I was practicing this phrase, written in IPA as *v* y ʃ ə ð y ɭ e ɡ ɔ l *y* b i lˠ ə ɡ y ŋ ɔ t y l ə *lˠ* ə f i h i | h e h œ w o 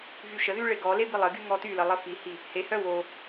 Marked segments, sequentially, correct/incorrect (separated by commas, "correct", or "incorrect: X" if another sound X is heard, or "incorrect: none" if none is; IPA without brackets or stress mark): correct, incorrect: e, correct